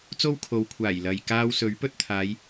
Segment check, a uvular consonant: absent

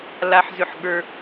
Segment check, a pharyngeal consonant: present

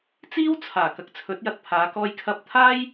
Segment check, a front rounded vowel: absent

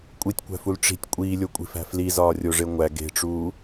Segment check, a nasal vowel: absent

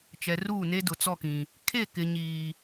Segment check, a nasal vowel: present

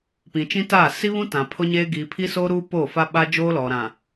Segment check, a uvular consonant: absent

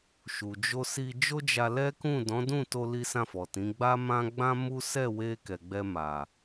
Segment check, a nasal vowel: present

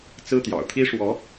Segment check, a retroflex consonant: present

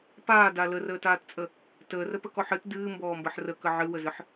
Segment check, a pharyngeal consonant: present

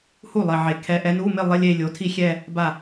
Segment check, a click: absent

